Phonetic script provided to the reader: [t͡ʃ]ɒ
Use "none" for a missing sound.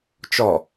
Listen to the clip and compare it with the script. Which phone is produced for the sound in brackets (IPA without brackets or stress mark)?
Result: t͡ʃ